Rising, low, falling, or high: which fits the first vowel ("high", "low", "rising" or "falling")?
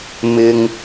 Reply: high